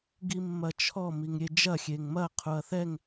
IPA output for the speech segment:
ɡ i mː ɐ t͡ʃʰ ɔ m i ŋ ɾʲ e d͡ʒ ɐ xʲ e ŋ m ɐ qʰ u ɐ̯ θ ɛ ŋ

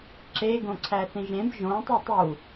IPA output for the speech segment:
ǁ e ɡ õ ǀʰ æ θ ĩ ʒ ẽ b ʒ õ tˤ i tˤ u

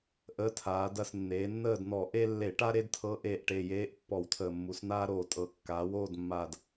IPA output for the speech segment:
ʔ əː˧˥ tʰ aː˩˧ d ɐ˦˨ s nː eː˩˧ nː əː˦˨ d n̪ ɔ˧˩˧ ʔ e˥ lː e˧˩˧ ʈ a˥ ɾ e˥ d tʰ ɤ˧˥ ʔ eː˨˩ ʔ ʈ e˨˩ j eː˧˥ ʔ pː ɔ˧˩˧ w tʰ əː˨˩ mː u˩˧ s n̪ aː˥ ɾ oː˨˩ tʼ ɤ˧˩˧ kː aː˩˧ w oː˦˨ d mː aː˨˩ d

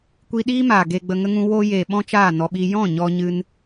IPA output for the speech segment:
kʷ i˧ ɗ iː˦ m aː˨ ɡ eː˧ ɡ͡b ə˧ ŋ ə˦ ŋ ũ˧ w oː˦ j eː˨ ɓ ɔ̃˦ t͡ʃ aː˦˨ n ɔ˧ ɓ i˦ j ɔ̃˦˨ ɲ ɔ˧ ɲ ɨ˧ n

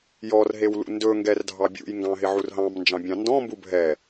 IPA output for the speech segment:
j ɔ r ɦ e w l ṵ n d ɵ ŋ ɡ ɛ r dʱ ɑ bʲ ṵ j ŋ ɡ ɑ̃ ɦ ɪ ʕ u r ɦ ɑ̃ m n d͡ʒ ɑ̃ bʲ ɑ̃ n d ɔ̃ m b u bʱ ɛ

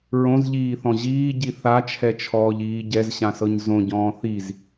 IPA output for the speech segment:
ɹ õ z ʎ iː θ ɔ̃ ʑ iː ɟ i θ a t͡ʃʰ ɛ t͡ʃʰ ɔː ʎ iː ɟ ɛ z ɕ ã s ɤ ɲ z õ ɟ ɔ̃ː θ i z

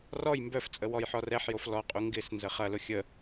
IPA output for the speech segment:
r ɔ j m b œ f t͡sʼ ə w ɔ j ħ ɔ r ɛ ħ j o f l ɔ qʼ u ŋ ɡ ɪ s n z ə χ ɐ l ʊ xʲ ə

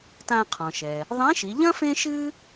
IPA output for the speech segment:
t ã˧ qʰ ɔ̃˩ ʃ ɛ˩ | ðˤ ẽ˧˥ ʃ i˩˧ ʎ ɐ̃˥ f ẽ˥ ʃ ɨ˥

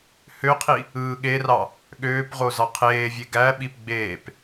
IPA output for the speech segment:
h ø qʰ i | ɯː ɠ e r ɑ | ɠ øː p ʁ o z ɑ qʰ eː vʲ e ɡ æ ɓ i p ɡ͡b eː p

